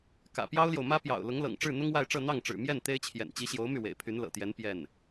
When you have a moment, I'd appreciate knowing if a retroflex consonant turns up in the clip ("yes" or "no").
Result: yes